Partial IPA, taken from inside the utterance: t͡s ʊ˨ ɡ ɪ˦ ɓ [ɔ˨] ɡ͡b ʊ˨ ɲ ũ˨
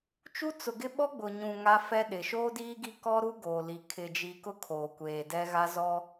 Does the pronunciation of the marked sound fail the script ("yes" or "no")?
yes